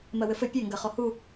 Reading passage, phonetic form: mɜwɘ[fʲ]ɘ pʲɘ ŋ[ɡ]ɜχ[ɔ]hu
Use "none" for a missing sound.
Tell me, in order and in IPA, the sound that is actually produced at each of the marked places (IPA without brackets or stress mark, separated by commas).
f, ɡ, ɔ